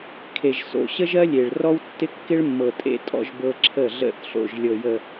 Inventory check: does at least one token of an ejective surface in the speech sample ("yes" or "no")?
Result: yes